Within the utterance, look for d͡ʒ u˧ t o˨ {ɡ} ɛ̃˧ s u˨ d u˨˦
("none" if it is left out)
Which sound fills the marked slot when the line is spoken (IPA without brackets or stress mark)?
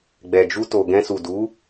ɡ